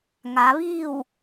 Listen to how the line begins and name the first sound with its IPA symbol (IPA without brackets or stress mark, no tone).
ŋ